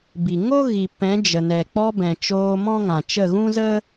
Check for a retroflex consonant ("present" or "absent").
absent